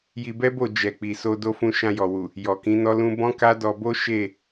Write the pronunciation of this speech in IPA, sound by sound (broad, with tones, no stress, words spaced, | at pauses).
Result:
ji˧bɛ˦bo˦˨ d͡ʒɛ˨k͡pi˨so˧ do˦fũ˦˨ ʃã˧jɔ˨wu˨ | jɔ˨kĩ˨˦nɔ˦lũ˦ bɔ̃˦ka˦dɔ˧bo˦ ʃe˦˨